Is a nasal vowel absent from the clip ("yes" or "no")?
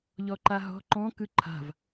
no